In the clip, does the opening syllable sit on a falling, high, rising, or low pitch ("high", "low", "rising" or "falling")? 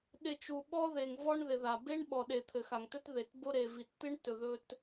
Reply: low